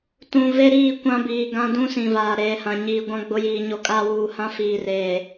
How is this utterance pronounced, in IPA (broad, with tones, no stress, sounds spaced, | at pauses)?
t ũ˨ v e˦ ɾ iː˦˨ kʷ ã˦ b iː˨ ɡ ã˦ d ũ˦ s ĩ˨ v aː˨ ɾ eː˨ h ã˨ ɲ iː˨ ɡʷ ã˦ ɡ͡b ʊ˦ j iː˨ ɲ o˦ kʼ aː˦ w uː˨ h ã˦ f iː˨ r eː˨